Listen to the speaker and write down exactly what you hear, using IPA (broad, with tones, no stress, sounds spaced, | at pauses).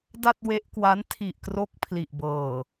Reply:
d a˥˩ t̚ w e˦˥ ʔ k w a˦˥ n tʰ i˨˩ ʔ k r o˦˥ k̚ pʰ l i˨˩ ʔ b ɤː˨˩